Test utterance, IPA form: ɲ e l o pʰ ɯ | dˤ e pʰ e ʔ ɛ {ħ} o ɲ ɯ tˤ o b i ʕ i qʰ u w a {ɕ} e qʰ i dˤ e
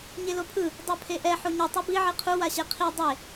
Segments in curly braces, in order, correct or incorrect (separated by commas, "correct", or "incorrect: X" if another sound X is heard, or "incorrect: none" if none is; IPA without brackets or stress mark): correct, correct